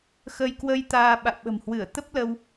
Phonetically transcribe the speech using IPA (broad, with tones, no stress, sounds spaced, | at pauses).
x ə˧ j k w ə˧ j t̪ aː˧ ɓ a̰˧˨ w ɓ ə̤˨˩ m h w ɨ˧˩ ə̯ t̪ ə˦˥ p̚ l ə˧ w